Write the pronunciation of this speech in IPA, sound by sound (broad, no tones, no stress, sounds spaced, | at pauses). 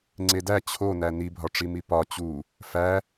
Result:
ŋ͡ǀ e d æ t͡ɕʰ o n æ n i bʱ ɒ ʈ͡ʂ i m i p ɒ t͡ɕ u | f æ